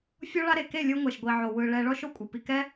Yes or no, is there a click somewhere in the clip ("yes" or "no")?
no